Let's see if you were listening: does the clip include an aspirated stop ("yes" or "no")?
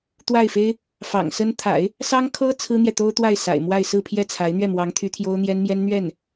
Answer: yes